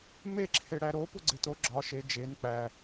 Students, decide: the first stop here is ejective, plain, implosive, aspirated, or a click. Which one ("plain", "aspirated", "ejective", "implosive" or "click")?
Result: click